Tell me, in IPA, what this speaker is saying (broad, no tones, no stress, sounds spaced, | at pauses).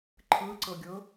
ǃʰ ɯ ǀ ɤ ɡʲ ɤ